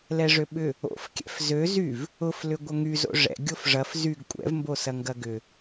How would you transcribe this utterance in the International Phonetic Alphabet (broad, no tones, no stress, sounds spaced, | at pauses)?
l ɛ ʐ ø ɓ ʏ | o̰ f kʲ ɛ̰ f z ø z y v | ʊ f l ʏ ɡʷ ɐ ŋ y z o̰ ʐ ɛ̰ ɡʲ o f ʐ ɐ f z y ɡ kʷʼ ɛ̰ v m b o s ɐ ŋ ɡ ɐ ɡ ʏ